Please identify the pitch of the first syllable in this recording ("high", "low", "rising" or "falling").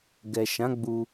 low